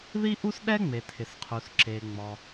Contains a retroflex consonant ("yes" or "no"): no